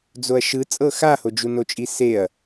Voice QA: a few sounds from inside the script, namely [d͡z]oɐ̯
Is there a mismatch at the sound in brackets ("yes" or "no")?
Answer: no